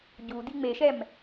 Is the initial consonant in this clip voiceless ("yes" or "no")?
no